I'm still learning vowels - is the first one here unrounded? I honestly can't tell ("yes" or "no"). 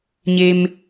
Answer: yes